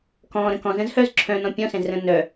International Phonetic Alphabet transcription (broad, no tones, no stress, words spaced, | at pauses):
kɔ̃ːɾə̃ kɔ̃zə̃ːzhœːz ǁʰœ̃nɔ̃ pʲɔ̃sɛ̃zrə̃ː nœ